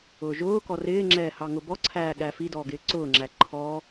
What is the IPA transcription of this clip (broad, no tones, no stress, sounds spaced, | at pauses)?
ʊː ʒ ʊː k ɔ r ɪː ŋ͡ǁ ɛː h ɑ ŋ ʊ b ɔ ǀʰ æː ɠ æ f i d ɔː ɡ ɪː ǀ ʊː ŋ͡ǁ æ ǃʰ ɔː